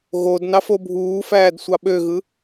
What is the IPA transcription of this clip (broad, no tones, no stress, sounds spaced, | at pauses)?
ɣ o d n ɑ f o bʱ uː f æː d sʷ ɑ ɓ ø ɣ ɯ